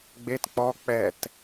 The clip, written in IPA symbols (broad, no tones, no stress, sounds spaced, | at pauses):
ɡ͡b e t k͡p ɔ k͡p ɛ t